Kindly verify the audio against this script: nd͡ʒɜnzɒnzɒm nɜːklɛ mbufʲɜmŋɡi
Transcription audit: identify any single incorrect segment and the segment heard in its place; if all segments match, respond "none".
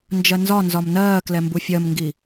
none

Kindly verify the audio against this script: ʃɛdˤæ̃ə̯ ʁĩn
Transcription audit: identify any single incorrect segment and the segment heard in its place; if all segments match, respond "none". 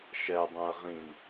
none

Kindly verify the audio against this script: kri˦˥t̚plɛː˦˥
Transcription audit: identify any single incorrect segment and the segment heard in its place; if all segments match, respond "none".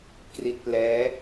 none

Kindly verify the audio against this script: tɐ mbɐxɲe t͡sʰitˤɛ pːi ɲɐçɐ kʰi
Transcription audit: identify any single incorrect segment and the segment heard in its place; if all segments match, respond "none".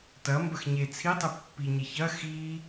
kʰ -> x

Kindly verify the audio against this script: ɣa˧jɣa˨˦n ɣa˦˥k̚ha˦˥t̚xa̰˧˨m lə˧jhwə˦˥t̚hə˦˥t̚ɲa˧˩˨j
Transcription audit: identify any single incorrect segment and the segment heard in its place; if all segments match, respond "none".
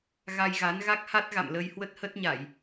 x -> ɣ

